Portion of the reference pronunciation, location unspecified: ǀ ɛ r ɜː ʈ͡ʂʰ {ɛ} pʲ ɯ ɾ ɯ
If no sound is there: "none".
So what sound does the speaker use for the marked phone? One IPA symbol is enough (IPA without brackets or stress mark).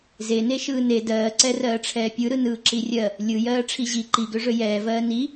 ɛː